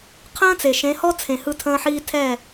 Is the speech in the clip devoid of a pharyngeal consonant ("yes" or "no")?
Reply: no